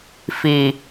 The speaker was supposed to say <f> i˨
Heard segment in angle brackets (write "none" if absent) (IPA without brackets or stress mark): f